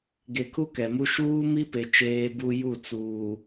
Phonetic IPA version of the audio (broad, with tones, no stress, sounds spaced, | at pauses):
ɡ e˨ kʰ u˦ k ɛ˨ m u˦ ʃ uː˦ m i˦ p e˨ t͡ʃ eː˨ b u˨ j u˦˨ t͡s uː˨